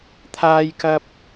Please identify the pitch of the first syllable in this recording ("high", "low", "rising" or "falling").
high